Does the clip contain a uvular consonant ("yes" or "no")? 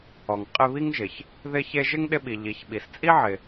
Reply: yes